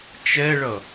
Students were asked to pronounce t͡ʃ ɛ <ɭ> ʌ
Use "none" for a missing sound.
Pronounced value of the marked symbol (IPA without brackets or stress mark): ɭ